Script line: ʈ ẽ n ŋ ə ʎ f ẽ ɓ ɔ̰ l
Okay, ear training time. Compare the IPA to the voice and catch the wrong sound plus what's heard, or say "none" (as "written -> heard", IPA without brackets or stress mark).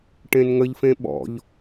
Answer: l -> ʎ